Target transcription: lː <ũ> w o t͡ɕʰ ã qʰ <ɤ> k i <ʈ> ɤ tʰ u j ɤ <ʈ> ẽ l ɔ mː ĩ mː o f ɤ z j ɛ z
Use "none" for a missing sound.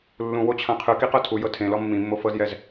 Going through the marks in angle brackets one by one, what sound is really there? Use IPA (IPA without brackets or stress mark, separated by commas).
ũ, ɯ, q, tʰ